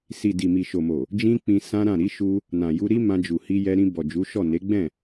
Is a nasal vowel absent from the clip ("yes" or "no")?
no